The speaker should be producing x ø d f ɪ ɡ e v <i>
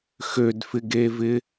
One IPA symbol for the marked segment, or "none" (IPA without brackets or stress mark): ɪ